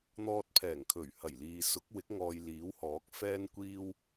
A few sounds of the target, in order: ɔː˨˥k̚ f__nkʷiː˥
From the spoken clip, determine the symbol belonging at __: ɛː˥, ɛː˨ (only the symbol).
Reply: ɛː˥